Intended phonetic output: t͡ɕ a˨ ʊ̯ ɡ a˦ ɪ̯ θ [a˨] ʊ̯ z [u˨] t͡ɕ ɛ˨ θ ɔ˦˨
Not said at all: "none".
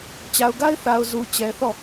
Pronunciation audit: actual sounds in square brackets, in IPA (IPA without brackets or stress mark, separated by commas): a˨, u˨